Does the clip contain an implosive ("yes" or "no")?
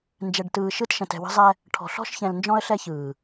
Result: no